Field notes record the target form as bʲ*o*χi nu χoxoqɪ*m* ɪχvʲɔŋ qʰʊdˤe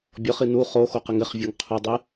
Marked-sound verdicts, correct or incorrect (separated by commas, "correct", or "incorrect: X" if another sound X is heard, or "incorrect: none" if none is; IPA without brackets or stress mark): incorrect: ɔ, incorrect: ŋ